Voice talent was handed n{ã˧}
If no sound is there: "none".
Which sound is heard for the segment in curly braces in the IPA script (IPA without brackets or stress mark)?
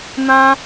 ã˧